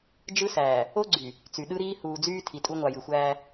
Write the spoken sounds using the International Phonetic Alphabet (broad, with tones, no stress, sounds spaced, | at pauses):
d͡ʒ ɯ˦ s æː˨ | o˦ ɡ͡ǀ y˨ | t͡s y˨ ɗ ɯ˦ ɾ iː˦ h uː˨ d͡z yː˦ tʰ i˨ tʼ u˦ ŋʷ ɑ˨ j ɯ˨ xʷ æː˦